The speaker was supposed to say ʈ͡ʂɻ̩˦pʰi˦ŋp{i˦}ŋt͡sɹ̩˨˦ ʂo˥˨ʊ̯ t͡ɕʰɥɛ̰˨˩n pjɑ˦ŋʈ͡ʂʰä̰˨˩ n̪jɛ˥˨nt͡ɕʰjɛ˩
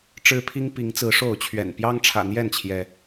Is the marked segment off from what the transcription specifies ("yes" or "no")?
yes